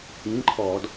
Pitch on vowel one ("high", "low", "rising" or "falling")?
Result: rising